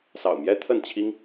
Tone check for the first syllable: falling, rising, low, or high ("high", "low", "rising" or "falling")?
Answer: low